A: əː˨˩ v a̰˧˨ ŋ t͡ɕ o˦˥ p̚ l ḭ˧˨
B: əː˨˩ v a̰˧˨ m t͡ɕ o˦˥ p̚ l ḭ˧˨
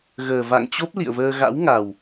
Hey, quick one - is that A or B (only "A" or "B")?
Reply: A